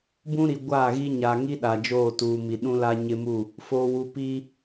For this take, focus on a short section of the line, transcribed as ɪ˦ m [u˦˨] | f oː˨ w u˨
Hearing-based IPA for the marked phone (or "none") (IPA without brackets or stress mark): u˦˨